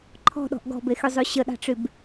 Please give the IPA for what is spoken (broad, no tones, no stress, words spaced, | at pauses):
ǃʰɔ̤ɗɔ̤ʔ ɡɔ̤bexyzˤy ɕəɗɑ̤ʈ͡ʂyb